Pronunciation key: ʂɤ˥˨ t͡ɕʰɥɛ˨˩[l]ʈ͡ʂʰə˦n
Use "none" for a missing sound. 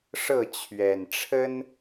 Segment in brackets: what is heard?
n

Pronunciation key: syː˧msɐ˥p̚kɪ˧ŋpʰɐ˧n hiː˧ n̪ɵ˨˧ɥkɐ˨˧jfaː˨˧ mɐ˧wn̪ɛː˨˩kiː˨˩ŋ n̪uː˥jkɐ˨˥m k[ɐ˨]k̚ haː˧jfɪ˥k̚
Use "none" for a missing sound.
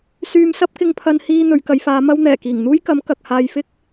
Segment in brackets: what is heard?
ɐ˨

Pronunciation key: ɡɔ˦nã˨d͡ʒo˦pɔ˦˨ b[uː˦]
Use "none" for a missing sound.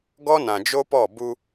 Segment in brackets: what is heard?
u˦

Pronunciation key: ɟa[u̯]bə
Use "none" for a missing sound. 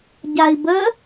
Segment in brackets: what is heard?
i̯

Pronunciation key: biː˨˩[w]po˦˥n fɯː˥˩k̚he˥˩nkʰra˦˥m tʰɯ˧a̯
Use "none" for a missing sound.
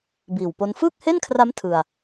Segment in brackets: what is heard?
w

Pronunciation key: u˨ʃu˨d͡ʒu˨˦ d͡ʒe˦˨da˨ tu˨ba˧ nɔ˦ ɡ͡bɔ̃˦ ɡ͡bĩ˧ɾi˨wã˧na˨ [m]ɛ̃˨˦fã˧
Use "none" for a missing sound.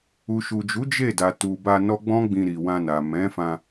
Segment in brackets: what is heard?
m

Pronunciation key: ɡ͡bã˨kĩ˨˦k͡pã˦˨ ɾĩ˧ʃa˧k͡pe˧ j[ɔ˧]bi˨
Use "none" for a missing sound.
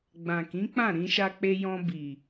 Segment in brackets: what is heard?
ɔ̃˧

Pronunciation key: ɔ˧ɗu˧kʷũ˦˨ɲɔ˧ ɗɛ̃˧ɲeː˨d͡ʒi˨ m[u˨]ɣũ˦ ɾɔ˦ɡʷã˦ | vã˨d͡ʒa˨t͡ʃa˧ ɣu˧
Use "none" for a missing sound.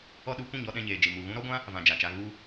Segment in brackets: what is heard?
u˨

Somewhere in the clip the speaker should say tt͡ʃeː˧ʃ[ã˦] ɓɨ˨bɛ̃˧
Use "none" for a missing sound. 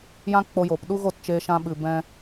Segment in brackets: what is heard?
ã˧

